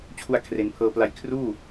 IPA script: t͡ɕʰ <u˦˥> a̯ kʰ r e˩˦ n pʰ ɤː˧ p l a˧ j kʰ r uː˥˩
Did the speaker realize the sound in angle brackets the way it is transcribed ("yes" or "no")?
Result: no